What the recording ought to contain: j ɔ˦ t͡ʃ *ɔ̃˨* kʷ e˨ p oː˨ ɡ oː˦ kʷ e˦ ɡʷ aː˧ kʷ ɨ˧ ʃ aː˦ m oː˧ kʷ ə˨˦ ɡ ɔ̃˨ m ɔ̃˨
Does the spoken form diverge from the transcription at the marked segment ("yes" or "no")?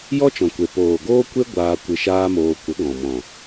no